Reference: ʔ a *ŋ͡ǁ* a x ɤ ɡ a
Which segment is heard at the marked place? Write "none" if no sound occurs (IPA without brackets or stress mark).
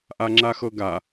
ŋ͡ǁ